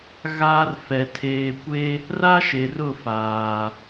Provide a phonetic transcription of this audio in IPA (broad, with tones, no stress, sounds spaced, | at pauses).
ɣ aː˦ r f ɛ˨ tʰ eː˨ kʷ e˦ | r a˦ ʃ e˨ r ʊ˦˨ f aː˨